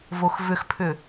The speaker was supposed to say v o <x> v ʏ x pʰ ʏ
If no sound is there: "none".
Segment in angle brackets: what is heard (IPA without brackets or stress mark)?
x